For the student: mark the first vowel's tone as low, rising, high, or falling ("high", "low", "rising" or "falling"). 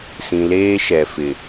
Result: low